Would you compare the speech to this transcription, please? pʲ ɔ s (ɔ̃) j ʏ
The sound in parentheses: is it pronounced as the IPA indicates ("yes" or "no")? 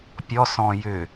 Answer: yes